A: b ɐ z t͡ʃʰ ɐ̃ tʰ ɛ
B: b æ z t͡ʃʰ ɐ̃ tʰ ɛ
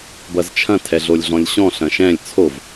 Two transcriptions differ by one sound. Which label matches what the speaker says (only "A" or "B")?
A